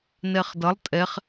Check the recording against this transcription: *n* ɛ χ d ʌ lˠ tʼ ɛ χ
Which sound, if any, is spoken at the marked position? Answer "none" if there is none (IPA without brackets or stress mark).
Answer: n